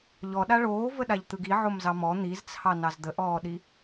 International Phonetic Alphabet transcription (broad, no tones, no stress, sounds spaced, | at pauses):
ʎ ɔ ɗ a ɭ oː v ə ɗ a ʎ t̪ ɯ ɡ i ʕ o m z ɑ m ɔ n̪ i z t͡sʰ ɑ n ɑ z d̪ ə ʔ ɔː ɗ i